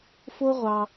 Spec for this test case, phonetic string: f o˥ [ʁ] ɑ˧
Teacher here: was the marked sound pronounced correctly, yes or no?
no